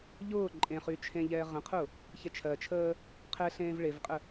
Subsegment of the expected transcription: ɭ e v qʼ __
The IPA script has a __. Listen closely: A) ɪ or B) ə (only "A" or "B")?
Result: B